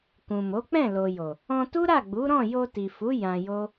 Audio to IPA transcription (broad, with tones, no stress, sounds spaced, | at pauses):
k ũ˨ m o˨˦ k͡p ɛ̃˦˨ l o˨ j o˨ | ɔ̃˧ t u˦ ɾ a˦˨ ɡ͡b u˨˦ ɾ ɔ̃˦˨ j o˧ t i˨ f u˨˦ j ã˧ j o˦